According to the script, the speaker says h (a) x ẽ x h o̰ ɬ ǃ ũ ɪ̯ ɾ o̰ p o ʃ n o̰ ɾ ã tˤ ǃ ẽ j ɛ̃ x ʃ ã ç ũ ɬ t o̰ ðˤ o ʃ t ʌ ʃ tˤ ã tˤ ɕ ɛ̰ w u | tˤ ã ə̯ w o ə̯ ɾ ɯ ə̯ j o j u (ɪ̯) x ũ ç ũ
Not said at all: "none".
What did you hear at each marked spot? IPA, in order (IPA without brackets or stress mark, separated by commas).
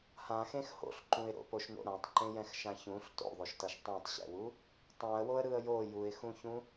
ã, ɪ̯